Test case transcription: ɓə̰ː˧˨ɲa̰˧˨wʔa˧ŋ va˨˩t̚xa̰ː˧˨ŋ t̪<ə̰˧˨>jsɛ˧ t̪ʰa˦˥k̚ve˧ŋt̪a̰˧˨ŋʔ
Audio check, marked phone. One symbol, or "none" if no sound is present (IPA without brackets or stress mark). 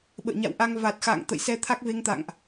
ə̰˧˨